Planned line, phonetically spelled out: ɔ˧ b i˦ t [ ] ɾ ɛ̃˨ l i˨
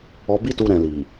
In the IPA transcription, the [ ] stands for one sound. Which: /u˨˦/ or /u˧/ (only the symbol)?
u˧